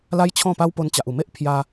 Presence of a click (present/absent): absent